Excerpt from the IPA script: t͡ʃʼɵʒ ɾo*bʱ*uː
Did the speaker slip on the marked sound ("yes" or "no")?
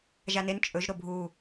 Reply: no